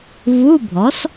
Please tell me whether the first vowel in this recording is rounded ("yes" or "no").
yes